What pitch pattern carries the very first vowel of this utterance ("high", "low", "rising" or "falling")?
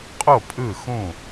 falling